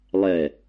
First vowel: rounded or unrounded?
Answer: unrounded